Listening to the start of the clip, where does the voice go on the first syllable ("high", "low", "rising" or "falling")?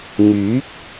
rising